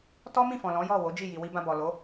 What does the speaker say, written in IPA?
t ɔ˦ m ĩ˦˨ f ɔ̃˨ l ɔ̃˨˦ j ɔ˦˨ w o˨˦ d͡ʒ i˦˨ j i˨ w i˧ b ã˧ b ɔ˨ l o˨˦

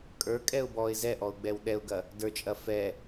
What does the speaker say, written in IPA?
kʼ ə˞ kʼ ɛ ʊ̯ b ɔ ɪ̯ z ɛ ʔ ɔ ʊ̯ ɡ͡b ɛ w ɗ ɛ ʊ̯ ɡ ɐ | d ə˞ t͡ʃʼ ɐ f ɛ

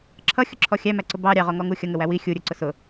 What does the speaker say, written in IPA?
ǁʰ ʌ xʲ ʊ ǁʰ ɔ xʲ æ m æ ǀ ʊ b ɑ ɾʲ ɑ ʁ ɔ ŋ ɔ ŋ u xʲ ʌ ŋ ə w æ w i xʲ u ɾʲ ə˞ ǀ ʊ s ʊ

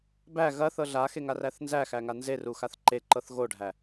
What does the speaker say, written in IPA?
b æ ɣ ɐ θ ɤ ɮ a x e ŋ a r æ θ n z æ x æ ŋ a n z e r u x a θ ǃ e ǃ ɤ θ ɣ o ɖʱ æ

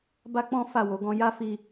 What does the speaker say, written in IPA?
b a˦ k͡p ɔ̃˦ f a˦˨ w o˨˦ ɡ ɔ̃˦ j a˦ f i˧

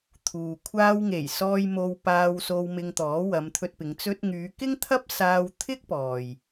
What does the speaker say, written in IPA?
t̪ʰ uː˨ kʷʰ aː˧ w ŋ e˨˩ j s ɔː˧ j m o˧ w p aː˧ w s o˧ w m ɪ˧ ŋ t̪ ɔː˨˥ w ɐ˨˧ m t̪ʰ ɵ˧ t̚ p ɪ˨˧ ŋ t͡s ɵ˧ t̚ ŋ yː˨˧ k ɪ˥ ŋ t̪ʰ ɐ˥ p̚ s aː˧ w t̪ʰ ɪ˥ k̚ p ɔː˨ j

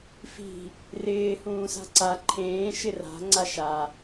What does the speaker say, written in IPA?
f i̤ | r ɪː h ũː s a̤ ǀ a ǃʰ ẽː ʃ ɪ r a̤ ŋ͡ǀ a ʃ a

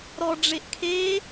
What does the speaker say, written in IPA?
ɾ ɔ ɖ͡ʐ e ʔ kʰ e

